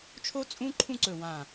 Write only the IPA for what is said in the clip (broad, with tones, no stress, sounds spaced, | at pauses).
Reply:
t͡ʃʰ o˥ t͡sʼ ũ˥ ǃʰ ũ˥˧ ǀ ɵ˧˩ w ã˧˩